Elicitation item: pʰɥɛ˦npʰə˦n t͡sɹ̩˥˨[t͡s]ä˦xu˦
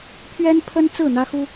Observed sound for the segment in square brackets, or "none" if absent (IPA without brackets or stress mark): n̪